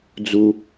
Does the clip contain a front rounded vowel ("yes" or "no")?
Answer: no